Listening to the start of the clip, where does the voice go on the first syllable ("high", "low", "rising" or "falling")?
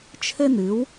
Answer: high